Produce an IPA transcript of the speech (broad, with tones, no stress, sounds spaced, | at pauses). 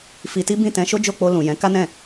f i˧ t i˦ b ĩ˦˨ t ɛ̃˧ ʃ o˦ d͡ʒ o˦˨ k͡p o˧ l ũ˨ j ɛ̃˨˦ k a˦ n ɛ̃˦˨